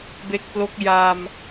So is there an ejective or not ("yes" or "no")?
no